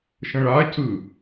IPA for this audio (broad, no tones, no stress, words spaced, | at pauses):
ʃə̃ɭa cɯ